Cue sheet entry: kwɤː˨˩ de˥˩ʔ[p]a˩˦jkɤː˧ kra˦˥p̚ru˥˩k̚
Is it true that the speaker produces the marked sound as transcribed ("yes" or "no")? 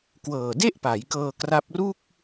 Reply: yes